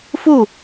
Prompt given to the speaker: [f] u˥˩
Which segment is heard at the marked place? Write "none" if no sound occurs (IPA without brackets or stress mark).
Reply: f